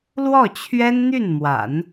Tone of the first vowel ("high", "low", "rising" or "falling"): falling